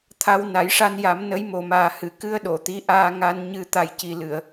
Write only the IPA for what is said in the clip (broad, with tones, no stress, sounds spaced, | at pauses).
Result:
t̪ʰ a˧ w n a˨˩˦ j ʂ a˧ n j a˨˩˦ m n ə˧˥ j m o˨˩ m aː˨˩ h ɨ˨˩˨ k ɨ˧ ə̯ ɗ o˨˩˨ t̪ i˧˥ ʔ aː˧ ŋ a˧ n ɲ ɨ˨˩ t̪ a˨˩ j c i˨˩ l ɨ˨˩˨ ə̯